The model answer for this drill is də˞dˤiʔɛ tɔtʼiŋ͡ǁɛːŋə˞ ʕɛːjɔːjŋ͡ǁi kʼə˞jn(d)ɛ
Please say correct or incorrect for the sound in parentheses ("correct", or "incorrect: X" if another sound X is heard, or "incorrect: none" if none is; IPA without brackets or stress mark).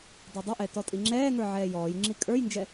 incorrect: d͡ʒ